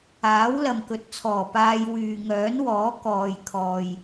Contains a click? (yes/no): no